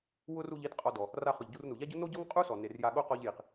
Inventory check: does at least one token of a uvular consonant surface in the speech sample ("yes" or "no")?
yes